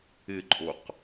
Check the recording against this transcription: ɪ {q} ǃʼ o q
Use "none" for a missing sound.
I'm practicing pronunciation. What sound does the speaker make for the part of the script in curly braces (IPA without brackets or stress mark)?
none